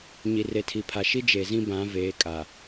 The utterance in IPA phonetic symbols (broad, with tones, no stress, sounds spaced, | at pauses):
ɲ i˨ r e˨ tʰ i˨ pʰ a˨ ʃ i˦ d͡ʒ e˨ z ĩ˦ b ã˨˦ v eː˨˦ kʼ a˨